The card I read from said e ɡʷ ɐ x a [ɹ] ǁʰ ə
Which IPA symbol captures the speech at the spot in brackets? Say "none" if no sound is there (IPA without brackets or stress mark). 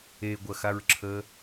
ɹ